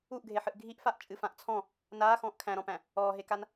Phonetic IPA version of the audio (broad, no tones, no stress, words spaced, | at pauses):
uʔɡʱeħɨʔ ɡʱiʔfaʔt͡ʃʼɨ fãʔt͡sʰɔ̃ | naː xɔ̃ːʔkʰæ̃ɾɔ̃pæ̃ | ɔːɦekan